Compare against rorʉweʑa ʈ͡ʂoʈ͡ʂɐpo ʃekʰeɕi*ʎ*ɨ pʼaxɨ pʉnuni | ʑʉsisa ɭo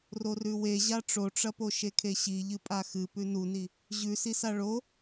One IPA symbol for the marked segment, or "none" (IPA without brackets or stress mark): ʎ